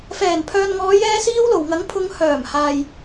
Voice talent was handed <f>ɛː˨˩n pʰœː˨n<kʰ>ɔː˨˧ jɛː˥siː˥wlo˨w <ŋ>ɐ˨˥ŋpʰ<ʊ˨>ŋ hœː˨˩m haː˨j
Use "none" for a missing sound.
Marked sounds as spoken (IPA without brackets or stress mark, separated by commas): f, ŋ, ŋ, ʊ˨˧